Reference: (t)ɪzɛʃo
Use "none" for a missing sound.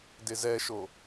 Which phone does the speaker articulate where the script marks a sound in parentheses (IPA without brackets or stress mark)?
d